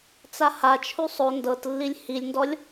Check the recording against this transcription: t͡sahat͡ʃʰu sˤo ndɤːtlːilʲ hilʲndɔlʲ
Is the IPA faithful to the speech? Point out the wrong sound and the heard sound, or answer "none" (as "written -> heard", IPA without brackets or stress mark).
ɤː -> ɤ